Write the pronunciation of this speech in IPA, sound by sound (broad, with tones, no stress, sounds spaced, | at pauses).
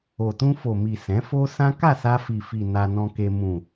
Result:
o˨ t ũ˧ f o˨ m i˨ s ɛ̃˨˦ f o˦ s ã˦ k a˦˨ s a˧ f i˨ f i˨ n a˧ n ɔ̃˧ k e˧ m ũ˨